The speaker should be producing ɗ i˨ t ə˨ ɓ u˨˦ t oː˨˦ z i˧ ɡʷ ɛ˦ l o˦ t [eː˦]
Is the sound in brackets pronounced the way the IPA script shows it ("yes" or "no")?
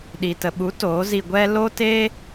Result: yes